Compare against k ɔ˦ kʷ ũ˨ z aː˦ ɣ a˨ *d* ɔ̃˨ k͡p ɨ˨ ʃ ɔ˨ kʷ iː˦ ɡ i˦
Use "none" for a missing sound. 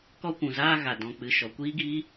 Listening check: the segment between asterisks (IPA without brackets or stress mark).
d